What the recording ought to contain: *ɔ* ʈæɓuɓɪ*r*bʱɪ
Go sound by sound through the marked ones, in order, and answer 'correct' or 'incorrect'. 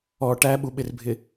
correct, correct

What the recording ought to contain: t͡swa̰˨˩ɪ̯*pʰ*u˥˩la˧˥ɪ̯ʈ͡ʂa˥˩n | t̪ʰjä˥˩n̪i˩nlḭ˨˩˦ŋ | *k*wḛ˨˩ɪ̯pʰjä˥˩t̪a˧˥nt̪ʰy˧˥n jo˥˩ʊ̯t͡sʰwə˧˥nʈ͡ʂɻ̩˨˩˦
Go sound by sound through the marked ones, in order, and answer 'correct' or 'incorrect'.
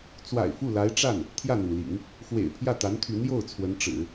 incorrect: f, incorrect: x

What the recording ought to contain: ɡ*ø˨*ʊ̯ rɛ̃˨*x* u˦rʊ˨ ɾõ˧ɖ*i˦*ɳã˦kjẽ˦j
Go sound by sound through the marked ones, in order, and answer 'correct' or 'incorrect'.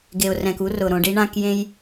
incorrect: e˨, incorrect: k, correct

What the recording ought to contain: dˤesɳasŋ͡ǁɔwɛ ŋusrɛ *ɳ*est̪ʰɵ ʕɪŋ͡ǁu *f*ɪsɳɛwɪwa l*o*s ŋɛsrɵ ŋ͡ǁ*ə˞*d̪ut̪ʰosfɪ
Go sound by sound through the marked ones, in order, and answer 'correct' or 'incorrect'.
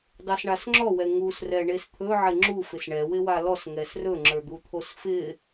correct, correct, incorrect: ɔ, correct

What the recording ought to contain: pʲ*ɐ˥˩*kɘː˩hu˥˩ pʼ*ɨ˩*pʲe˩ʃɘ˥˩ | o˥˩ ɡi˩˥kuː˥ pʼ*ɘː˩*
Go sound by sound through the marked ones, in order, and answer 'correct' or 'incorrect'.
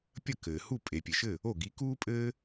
correct, incorrect: e˩, incorrect: ɘː˥

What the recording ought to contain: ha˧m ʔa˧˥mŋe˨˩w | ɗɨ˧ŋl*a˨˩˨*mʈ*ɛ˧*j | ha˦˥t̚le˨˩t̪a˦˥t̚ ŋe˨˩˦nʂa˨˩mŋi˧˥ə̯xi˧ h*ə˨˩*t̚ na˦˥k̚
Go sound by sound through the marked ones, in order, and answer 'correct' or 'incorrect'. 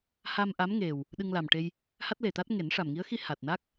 incorrect: a˨˩, incorrect: e˧, incorrect: a˨˩

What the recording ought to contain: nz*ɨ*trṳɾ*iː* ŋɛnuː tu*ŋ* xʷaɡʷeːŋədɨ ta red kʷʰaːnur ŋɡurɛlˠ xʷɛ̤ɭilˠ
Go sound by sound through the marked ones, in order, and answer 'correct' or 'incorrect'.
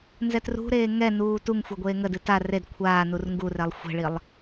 incorrect: ɛ, incorrect: eː, correct

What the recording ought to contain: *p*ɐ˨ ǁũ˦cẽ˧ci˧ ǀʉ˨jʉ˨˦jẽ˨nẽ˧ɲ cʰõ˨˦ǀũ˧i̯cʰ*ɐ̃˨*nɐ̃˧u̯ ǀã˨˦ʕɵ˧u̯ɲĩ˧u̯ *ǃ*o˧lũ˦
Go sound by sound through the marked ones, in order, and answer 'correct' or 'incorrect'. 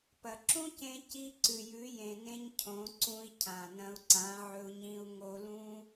correct, incorrect: ã˨, incorrect: ŋ

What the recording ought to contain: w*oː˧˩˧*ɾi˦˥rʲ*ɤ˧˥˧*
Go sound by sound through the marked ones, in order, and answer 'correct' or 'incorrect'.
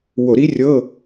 incorrect: o˧˩˧, correct

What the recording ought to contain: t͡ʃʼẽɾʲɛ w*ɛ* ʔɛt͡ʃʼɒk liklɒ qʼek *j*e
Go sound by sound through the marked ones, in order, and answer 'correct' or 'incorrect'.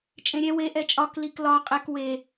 incorrect: e, incorrect: w

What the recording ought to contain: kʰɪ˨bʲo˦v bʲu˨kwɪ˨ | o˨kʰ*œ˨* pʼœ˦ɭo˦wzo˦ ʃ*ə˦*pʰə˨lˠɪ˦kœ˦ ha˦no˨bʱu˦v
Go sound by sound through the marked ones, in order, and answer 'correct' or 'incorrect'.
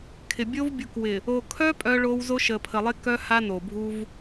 incorrect: œ˦, incorrect: ə˨

